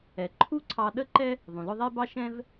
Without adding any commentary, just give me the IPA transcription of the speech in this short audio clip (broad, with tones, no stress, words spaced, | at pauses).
ɛ˩ ǃʰu˥ǀʰɑ˧ ɗə˥ǃɛ˥ | ðˤũ˩lʊ˧ ðˤɛ˥bɑ˥ʃɛ̃˥v